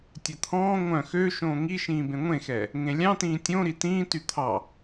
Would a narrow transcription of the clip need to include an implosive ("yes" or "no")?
no